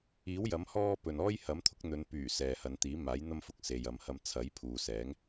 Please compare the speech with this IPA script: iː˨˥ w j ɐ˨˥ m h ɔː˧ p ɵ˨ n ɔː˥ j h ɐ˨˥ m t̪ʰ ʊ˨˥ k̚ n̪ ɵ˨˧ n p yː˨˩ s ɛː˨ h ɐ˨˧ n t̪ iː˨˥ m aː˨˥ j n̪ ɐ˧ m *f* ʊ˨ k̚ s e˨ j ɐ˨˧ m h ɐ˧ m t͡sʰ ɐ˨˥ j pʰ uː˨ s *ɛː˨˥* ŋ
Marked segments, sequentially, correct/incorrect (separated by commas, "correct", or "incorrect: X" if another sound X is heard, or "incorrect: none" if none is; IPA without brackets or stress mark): correct, correct